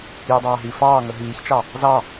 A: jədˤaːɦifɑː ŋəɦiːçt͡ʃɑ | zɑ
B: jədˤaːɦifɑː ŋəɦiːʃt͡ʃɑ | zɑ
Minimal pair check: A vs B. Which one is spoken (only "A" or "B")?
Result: A